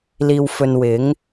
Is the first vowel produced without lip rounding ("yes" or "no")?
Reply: yes